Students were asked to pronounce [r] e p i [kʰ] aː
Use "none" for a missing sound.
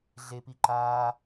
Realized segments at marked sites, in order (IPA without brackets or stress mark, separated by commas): ɮ, ǃ